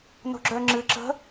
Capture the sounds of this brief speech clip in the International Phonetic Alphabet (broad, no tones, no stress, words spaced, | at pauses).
no̤ɡ͡ǁœŋ͡ǁɨ ǁə̤